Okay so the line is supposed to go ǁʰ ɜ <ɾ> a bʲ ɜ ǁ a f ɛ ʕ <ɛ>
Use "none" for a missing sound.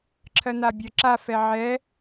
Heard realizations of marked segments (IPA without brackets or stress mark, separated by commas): n̪, ɛ